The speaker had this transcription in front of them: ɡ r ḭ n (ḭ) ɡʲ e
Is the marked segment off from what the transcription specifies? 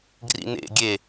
yes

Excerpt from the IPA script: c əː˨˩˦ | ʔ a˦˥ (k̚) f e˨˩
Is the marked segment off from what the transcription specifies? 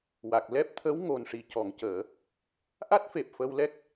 yes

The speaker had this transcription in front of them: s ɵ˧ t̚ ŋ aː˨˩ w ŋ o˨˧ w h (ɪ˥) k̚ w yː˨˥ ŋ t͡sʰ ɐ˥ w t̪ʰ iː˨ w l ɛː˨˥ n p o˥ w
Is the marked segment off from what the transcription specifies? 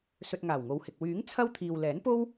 yes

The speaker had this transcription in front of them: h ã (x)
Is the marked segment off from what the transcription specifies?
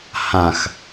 no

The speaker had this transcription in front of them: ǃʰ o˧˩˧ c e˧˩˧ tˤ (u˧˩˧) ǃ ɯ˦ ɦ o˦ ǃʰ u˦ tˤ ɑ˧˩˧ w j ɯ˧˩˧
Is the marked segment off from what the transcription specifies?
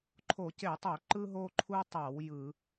yes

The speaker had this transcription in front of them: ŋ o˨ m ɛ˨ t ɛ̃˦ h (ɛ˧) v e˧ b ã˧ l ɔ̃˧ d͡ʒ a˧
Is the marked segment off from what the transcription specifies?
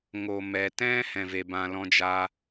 yes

